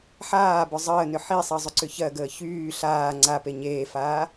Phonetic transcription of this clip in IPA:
ħ aː b ʏ zˤ əː n ʏ ħ i sˤ ɜ zˤ ʏ ǀ ʏ ç ɜ ɡ əː ç yː ɬ aː ŋ͡ǀ a p e ɲ eː f aː

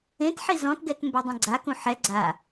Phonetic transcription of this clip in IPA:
ẽ t ħ i z ɔ̃ t ɡ ɛ t m b ɛ dˤ œ̃ ɡ͡ǀ a k ũ ħ ɛ ɡ͡ǀ a

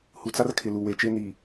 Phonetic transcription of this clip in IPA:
h u˨ t͡s a˦ r kʰ ɪ˨ l u˨ w e˨ t͡ʃ e˦ n i˨

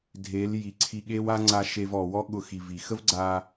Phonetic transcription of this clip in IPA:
dʱ e˨˦ l j i˨ ǀʰ i˧ ɠ e˦ w a˦ ŋ͡ǀ a˧ ʃ e˧ v ɔ˨ w ɔ˦ ɠ ʊ˧ x i˨ v i˨ x ə˦ v ɡ͡ǀ a˧

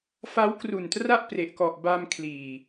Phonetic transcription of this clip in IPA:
f a˦˥ w k r u˨˩ n t r a˥˩ ʔ p r e˨˩ ʔ k ɔ˨˩ ʔ b a˧ m kʰ l iː˨˩

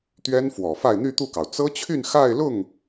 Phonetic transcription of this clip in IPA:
t̪ ɥ ɛ˥ n f w ɔ˨˩ f a˥˧ ɪ̯ n̪ y˥˧ t̪ u˥˩ k ɑ˩ ʊ̯ t͡s ɤ˥ t͡ɕʰ y˥˧ n x a˥˧ ɪ̯ l ʊ˥˩ ŋ

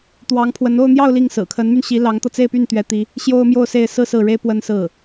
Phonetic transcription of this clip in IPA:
t̪ w ɑ˧˥ ŋ pʰ w ə˧˥ n o˥˧ ʊ̯ n̪ j ɑ˥˧ ʊ̯ l i˥˩ ŋ s ɹ̩˨˩ kʰ ə˧˥ n m y˧ n ɕ i˧˥ l ɑ˧˥ ŋ t̪ ɤ˧ t͡s e˥˧ ɪ̯ p y˥˩ n t̪ ɥ ɛ˥ t̪ i˥ | ɕ j o˥ ʊ̯ m j o˥˧ ʊ̯ s e˥˧ ɪ̯ s ɹ̩˥˧ s ɹ̩˥˩ ɻ e˥ ɪ̯ p w ə˥ n s ɹ̩˥˩

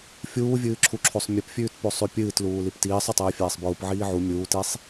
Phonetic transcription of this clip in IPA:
fʲ uː vʲ ɨː ǁʰ u ǁʰ o sˤ mʲ ɵ p fʲ ʉː t p o sˤ ʉ pʲ ɨː t l uː l i p t iː sˤ ɵ tˤ iː fʲ aː sˤ b ɹ u p ʕ iː ʕ u mʲ uː t e sˤ

